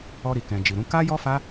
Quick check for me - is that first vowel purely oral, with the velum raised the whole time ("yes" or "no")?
yes